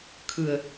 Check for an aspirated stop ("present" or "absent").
present